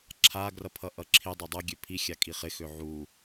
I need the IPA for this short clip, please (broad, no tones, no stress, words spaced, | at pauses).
ǁʰaɡrʌpʰʌ ʔʌǁʰi dˤadˤʌ ɡʲøpʰixʲa kʼiχɪxø ʕu